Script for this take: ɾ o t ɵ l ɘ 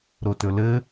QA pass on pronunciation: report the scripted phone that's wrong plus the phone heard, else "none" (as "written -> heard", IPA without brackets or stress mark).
none